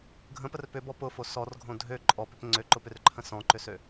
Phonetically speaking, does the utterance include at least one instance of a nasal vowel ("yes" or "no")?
yes